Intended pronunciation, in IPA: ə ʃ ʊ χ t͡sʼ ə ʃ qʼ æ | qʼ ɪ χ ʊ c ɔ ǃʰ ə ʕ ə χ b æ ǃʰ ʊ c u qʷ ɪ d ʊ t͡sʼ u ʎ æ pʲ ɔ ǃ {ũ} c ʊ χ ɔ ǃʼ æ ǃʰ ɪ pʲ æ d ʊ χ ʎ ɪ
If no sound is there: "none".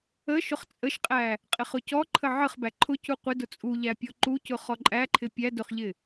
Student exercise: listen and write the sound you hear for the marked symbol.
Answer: u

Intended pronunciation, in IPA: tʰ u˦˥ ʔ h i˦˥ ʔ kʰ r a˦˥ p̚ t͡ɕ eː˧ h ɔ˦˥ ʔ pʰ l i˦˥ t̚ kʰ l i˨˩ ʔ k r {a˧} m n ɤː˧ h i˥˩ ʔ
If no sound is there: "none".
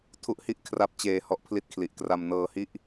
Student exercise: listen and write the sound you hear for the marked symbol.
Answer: a˧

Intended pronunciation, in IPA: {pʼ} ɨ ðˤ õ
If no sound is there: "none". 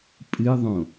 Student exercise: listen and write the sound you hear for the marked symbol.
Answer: pʼ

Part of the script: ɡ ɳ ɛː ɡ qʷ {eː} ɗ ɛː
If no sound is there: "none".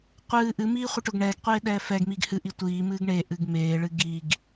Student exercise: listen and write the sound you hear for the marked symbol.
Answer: eː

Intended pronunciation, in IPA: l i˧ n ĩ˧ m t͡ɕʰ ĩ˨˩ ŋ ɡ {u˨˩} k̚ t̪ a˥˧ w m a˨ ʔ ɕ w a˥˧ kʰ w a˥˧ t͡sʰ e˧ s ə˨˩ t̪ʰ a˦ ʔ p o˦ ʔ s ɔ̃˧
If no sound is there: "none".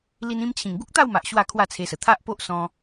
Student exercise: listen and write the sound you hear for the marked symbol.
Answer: u˦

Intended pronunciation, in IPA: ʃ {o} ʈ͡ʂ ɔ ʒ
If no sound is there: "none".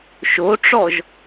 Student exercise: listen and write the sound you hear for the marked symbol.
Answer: o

